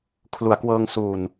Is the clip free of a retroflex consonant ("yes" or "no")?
yes